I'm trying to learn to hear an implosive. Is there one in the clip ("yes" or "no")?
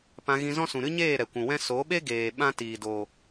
yes